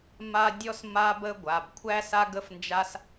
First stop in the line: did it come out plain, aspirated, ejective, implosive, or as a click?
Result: plain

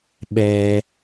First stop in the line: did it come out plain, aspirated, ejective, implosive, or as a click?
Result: implosive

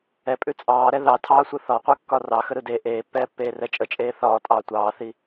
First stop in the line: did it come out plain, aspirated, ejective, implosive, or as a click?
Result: ejective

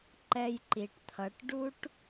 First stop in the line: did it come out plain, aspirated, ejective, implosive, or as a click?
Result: click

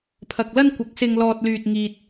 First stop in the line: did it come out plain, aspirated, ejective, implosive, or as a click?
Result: aspirated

